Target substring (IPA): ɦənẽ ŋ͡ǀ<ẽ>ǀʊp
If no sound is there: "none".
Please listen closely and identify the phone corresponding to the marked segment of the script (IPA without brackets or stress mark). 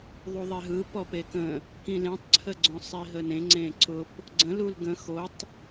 ẽ